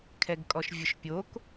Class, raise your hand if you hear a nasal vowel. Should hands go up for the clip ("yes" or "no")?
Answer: no